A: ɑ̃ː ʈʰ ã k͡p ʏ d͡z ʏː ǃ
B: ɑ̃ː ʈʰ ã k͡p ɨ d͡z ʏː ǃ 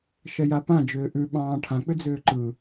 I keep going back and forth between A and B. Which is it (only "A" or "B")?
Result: A